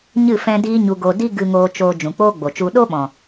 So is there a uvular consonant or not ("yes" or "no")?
no